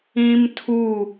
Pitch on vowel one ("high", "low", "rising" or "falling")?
high